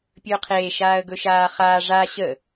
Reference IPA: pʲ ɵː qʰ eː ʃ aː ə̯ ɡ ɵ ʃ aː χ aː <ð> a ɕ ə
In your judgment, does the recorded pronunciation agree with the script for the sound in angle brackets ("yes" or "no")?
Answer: no